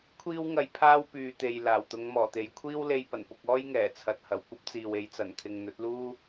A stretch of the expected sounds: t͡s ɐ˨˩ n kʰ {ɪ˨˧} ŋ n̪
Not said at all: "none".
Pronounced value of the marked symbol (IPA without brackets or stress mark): ɪ˨